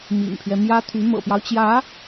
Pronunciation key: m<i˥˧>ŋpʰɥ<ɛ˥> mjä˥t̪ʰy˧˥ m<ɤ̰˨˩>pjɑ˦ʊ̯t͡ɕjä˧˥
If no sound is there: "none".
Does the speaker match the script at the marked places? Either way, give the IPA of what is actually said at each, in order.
ḭ˨˩, ɛ˦, ɤ̰˨˩

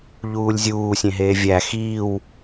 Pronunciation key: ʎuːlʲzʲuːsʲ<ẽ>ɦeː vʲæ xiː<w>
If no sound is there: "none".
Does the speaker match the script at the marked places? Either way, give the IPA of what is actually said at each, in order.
ẽ, w

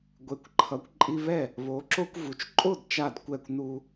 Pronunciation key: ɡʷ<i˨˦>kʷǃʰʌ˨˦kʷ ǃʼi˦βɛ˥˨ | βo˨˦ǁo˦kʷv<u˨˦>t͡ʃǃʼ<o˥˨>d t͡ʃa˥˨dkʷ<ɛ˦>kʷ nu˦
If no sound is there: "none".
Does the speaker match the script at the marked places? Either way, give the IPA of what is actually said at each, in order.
e˨˦, u˨˦, o˥˨, ɛ˥˨

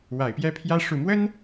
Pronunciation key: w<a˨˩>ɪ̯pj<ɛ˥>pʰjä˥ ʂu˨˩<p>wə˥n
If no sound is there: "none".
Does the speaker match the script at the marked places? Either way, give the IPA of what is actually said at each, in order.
a˨˩, ɛ˥, m

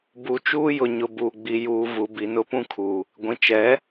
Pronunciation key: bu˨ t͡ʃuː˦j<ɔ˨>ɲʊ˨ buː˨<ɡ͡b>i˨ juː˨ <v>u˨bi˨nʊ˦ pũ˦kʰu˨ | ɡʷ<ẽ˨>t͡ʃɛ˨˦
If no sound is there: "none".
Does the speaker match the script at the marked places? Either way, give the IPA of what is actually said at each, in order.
ʊ˨, ɡ͡b, v, ĩ˨

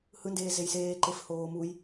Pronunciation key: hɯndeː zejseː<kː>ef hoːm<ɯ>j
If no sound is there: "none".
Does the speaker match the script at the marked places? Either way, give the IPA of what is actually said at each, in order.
ǃ, u

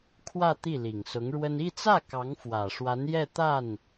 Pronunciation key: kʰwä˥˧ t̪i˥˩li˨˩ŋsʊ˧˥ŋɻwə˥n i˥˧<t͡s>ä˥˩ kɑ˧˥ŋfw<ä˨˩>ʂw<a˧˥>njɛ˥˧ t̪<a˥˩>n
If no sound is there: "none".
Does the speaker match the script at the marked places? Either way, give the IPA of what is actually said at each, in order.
t͡s, ä˨˩, a˧˥, a˥˩

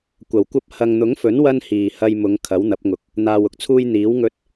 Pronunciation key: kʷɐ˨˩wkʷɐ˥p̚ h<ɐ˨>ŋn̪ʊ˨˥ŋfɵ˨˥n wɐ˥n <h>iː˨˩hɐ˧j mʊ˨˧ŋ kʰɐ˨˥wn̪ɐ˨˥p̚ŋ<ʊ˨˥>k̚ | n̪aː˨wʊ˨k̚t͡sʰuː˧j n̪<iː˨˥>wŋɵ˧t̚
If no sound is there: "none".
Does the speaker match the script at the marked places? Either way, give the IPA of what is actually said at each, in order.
ɐ˨, h, ʊ˨˥, iː˨˥

